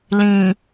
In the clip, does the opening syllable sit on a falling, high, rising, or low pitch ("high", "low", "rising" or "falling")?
low